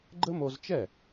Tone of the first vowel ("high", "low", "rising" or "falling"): high